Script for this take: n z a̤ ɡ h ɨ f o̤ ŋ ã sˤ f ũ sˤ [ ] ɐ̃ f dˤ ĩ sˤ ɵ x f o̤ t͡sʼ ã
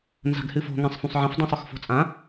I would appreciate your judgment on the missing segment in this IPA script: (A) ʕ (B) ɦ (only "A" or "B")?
A